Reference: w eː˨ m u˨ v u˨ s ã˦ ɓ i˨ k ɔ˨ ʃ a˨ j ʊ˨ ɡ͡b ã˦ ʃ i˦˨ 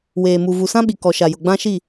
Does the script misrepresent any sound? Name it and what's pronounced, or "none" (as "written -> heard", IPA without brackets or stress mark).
none